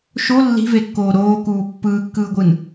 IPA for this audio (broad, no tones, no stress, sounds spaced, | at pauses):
ʃ o lː i̤ v e kː oː ɾ oː k uː pː ɯː kː ɯː ɡʷ ɯ n